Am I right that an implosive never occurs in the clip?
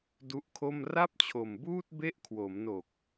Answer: yes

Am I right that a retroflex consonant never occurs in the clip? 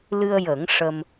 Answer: no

